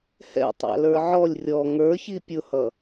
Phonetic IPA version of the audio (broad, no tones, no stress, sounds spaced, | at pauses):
h ɛ̰ tˤ ɑ̰ l ə˞ ʕ ɔ lʲ rʲ ɔ ŋ ə˞ ç i pʲ ʊ h ʌ